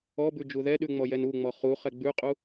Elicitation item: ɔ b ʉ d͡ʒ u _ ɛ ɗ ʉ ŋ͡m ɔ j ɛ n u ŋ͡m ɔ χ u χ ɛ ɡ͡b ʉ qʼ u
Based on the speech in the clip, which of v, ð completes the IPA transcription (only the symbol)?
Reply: ð